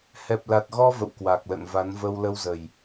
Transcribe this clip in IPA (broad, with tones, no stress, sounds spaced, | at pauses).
h ɛ˨˩ p̚ l a˨˩ t̚ ɣ ɔ˧ v ə̰˧˨ w k w a˨˩ k̚ l ə̰ː˧˨ n v a˨˦ n v ə˧ w l ə˧ w z ə˨˩ j